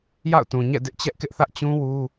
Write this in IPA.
ja̰˦˨ʊ̯tũ˨ɲɛ̰˦˨ dɪ˦ʔt͡ɕɛ˦ʔkɪ˦ʔθä˦ʔ t͡ɕũ˦wu˦

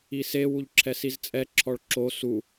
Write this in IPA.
ise wuʎǁʰɛsizt͡sʼɛ ǁʰɔɭǁo su

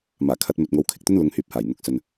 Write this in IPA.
maː˨˩kʰɐ˧t̚ mɵ˨t̚ŋo˨˥wkʰɪ˨k̚t̪ɵ˥n lʊ˨˧ŋhyː˨˥p̚haː˨˩j n̪ʊ˨˥k̚sɵ˨n

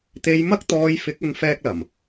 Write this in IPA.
t̪e˧jmɐ˥k̚t̪ɔː˧j fɪ˨˥k̚ɵ˨˧n fɛː˥k̚lɐ˨˩m

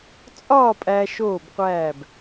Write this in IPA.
t͡sʼɒː˥˧pʼæ˧ ʃoː˧˩bqʷæː˧˩b

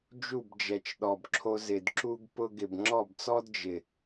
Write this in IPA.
d͡ʒu˦˨bd͡ʒɛ˨t͡ʃɗɔ˨bǁʰo˧ zɪ˨dǁu˧ɡ pʊ˧ɡɪ˨b ŋ͡ǁɔ˦˨bt͡sɔ˦d d͡ʒɪ˨

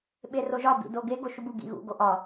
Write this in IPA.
ɓeroʒɒ bḭdoɡe ɡoʃubu ɡḭɣṵ ɡoʔɒ

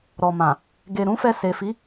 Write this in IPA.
ɾɔ˨mã˨ | ɡe˨ɾũ˨˦fɛ˧ se˨fi˨˦

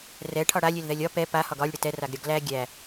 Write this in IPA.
rɛ ʈʰɒɽalʲelðɛlʲ ɒ pɛ pa hɒɡɒlʲɽə tɛraɡ ɾʲɒɡlæ ɡʲæ

